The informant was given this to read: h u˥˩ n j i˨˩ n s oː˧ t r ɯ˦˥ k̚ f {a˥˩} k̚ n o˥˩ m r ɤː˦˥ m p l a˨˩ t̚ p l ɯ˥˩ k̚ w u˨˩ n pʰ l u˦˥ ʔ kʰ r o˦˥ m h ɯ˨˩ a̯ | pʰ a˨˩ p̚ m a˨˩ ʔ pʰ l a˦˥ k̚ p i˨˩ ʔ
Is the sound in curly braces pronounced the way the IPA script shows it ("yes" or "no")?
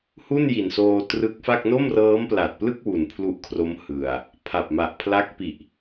yes